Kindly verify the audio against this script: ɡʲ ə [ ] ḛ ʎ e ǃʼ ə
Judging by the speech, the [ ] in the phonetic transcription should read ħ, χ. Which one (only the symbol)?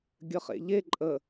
χ